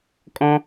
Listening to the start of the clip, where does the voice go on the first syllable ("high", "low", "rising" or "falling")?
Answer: high